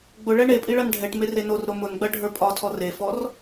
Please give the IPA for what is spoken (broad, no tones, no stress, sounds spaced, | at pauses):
ɡ͡b ʊ ɭ ɛ ɳ e pʼ i ɭ ɐ n ɖʱ ɛ ʈ m e r e n o r ɾ o m ʊ n ɡ͡b ɐ ɖʱ ə˞ pʼ ɒ tʰ ɔ r e f ɔ r